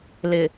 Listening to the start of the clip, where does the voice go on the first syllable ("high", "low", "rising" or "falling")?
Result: low